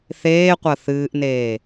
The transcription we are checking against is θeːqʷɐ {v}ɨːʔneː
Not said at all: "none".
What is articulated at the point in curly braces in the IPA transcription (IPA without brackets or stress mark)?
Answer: θ